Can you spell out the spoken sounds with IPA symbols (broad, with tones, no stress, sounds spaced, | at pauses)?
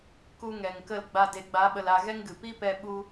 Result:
k u˧ ŋ ɛ˨ ŋ k ə˦˨ l ɡ͡b a˧ d e˨ ɡ͡b a˨˦ ɓ ə˧ l a˧ ɣ ɛ˦ ŋ ɡ ɨ˨ p i˦ p ɛ˧ ɓ u˧